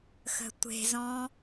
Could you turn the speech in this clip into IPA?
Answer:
x ə̤ tʷ e̤ z ɔ̃

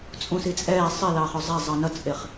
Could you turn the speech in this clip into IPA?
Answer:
t͡sʼ ũ s i t͡sʼ ɛː sˤ ɪ l ɑː χ ʊ zˤ ɛ zˤ ʌ n ʌ t͡sʼ ɪ χ

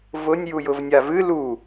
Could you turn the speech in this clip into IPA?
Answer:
v ʊ nʲ j u j ʊ v nʲ a v ɨ l u

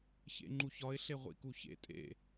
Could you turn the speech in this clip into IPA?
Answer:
ç ḛ ŋ͡ǃ u ç ɒ ɪ̯ ɬ e ʁʷ ḭ k u ç ḛ tʼ ḛ

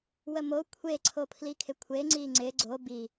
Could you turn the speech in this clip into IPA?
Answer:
w ə m o kʷʰ e ǀʰ o pʰ l i kʰ ɪ kʷʰ e ŋ͡ǀ i ŋ͡ǀ ɪ ɡ͡ǀ o b i

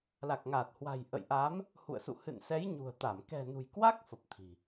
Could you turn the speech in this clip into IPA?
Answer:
l a˨˩ k̚ ŋ aː˨˩ t̚ h w a̤˨˩ j ʔ ə̰˧˨ j ʔ a˨˦ m | h ṵ˧˨ ə̯ s ṵ˧˨ h ɨ̰˧˨ n s ɛ˨˦ j ɲ ṳ˨˩ ə̯ t̪ a˧˩ m k ɛ̤˨˩ n ṳ˨˩ j k w a˦˥ k̚ f ə˨˩ p̚ t̪ʰ i̤˨˩

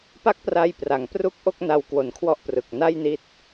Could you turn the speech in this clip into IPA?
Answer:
p a˥˩ k̚ p r a˧ j p r a˩˦ ŋ p r u˥˩ k̚ ʔ o˥˩ k̚ n a˧ w k w o˨˩ n kʰ w ɔ˥˩ ʔ p r ɯ˨˩ k̚ n a˥˩ j n i˦˥ t̚

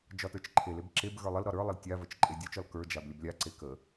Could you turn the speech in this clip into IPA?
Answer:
d͡ʒ ɒ t ə˞ t͡ʃ ǃʰ e l e b ǁ e b ɣ ə˞ lˠ ə l ɾ ɒ ɾ ə˞ lˠ ə l tʲ a v ə t͡ʃ ǃʼ e dʲ ə˞ t͡ʃ ɒ l k ə˞ d͡ʒ a b lʲ ə b lʲ a ǀ e k ə

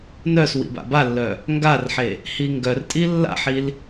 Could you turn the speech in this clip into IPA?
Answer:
n œ s w ḭ b a̰ b a lː œ | ŋ ɡ a r ħ e | h i ŋ ɡ œ r tʼ i lː a̰ ħ i l

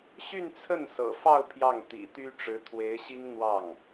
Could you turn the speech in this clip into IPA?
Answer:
ɕ y˥˧ n t͡sʰ ə˥˩ n s ɤ̰˨˩ f ɑ˥˧ ʊ̯ pʰ j ɑ˥˩ ŋ t̪ ḭ˨˩ t̪ y˥ ʈ͡ʂ ɻ̩˧˥ t̪ʰ w e˧˥ ɪ̯ ɕ i˥ ŋ n̪ w ɑ˥˩ ŋ

